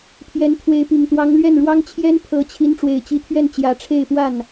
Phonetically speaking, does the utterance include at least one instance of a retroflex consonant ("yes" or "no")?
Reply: yes